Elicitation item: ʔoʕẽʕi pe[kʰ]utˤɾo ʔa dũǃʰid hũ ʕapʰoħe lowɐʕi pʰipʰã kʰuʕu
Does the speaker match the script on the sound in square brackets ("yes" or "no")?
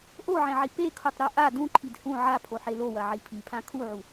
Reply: yes